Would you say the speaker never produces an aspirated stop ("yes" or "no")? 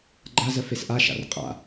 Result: yes